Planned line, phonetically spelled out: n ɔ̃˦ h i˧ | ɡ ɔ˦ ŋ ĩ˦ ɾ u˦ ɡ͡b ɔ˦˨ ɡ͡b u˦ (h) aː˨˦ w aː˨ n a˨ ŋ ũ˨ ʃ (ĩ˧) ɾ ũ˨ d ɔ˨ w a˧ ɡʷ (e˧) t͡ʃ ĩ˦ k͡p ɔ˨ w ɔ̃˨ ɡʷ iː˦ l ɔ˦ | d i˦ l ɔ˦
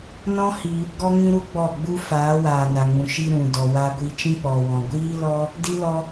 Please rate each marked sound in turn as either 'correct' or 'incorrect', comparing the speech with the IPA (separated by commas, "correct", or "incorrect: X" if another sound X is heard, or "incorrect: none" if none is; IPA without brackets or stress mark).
incorrect: f, incorrect: i˧, incorrect: i˧